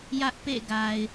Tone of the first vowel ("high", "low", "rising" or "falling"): high